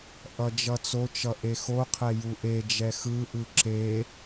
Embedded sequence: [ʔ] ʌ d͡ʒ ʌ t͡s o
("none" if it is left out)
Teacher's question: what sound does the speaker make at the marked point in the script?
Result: ʔ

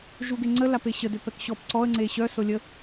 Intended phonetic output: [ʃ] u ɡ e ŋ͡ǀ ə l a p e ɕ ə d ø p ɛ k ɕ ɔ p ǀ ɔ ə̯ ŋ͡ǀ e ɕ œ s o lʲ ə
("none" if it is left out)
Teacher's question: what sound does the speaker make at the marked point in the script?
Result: ʒ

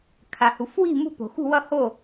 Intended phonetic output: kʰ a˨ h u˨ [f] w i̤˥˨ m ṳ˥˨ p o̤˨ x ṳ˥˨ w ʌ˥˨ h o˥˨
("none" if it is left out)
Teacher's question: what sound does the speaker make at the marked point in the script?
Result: f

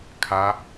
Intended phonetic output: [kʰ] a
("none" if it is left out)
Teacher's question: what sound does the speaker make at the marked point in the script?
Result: kʰ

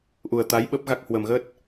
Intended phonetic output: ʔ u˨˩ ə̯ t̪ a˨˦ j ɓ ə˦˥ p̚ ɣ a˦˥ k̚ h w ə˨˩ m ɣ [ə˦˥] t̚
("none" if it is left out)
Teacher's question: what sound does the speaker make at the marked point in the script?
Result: ə˦˥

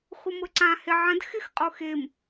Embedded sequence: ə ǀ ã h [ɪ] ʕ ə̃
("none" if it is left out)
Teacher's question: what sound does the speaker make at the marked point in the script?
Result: ɪ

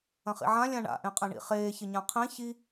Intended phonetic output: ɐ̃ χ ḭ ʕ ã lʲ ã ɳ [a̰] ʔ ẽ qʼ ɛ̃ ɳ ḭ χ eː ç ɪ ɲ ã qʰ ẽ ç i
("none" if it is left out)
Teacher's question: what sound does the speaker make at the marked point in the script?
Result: a̰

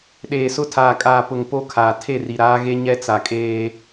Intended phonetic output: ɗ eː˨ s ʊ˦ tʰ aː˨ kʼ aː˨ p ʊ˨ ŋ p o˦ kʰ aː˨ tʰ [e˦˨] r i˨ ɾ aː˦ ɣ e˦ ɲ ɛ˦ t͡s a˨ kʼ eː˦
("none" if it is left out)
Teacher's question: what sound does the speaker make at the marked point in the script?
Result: e˦˨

